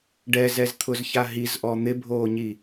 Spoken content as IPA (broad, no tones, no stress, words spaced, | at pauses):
ɖɛzɛzt̪ʰʊzça ɦizʔɔ n̪ɪbʱoːɲi